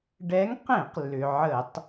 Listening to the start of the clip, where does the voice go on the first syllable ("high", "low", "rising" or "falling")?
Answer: rising